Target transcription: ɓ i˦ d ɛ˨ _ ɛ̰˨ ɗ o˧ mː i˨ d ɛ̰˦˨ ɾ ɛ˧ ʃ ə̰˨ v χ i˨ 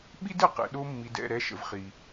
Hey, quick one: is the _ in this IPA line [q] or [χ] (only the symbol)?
q